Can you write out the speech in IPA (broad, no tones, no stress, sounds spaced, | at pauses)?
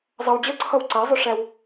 zˤ ʌ w d͡ʑ ʌ ǀʰ ʌ w ǀ æ zˤ ʊ ʂ æ w